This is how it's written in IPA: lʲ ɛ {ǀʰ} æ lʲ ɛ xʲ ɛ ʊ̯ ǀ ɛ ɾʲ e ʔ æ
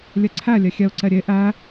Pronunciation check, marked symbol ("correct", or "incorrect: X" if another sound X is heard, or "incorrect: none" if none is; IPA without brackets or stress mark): correct